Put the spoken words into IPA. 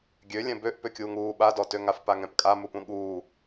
ɡʲ ø lʲ ɛ̃ b ø ʔ p ø kʲ uː ŋ uː ɓ a d ɔ t ø ŋ a f p a ŋ ɛ̃ p kʼ a m u p ũ ɠ uː

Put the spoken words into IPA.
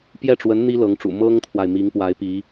p j ɛ˥˩ ʈ͡ʂ w ə˧˥ n n̪ i˥ l ɤ˧˥ ŋ ʈ͡ʂ ṵ˨˩ m ɤ˥ ŋ t̪ʰ w a˨ ɪ̯ m i˧˥ ŋ p w a˧˥ ɪ̯ p i˧˥

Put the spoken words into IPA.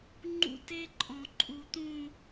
ŋ͡ǃ ṵ˦ t e˦ ǃʼ ɔ̃˨ ǃʼ u˨ t̪ ũ˦˨

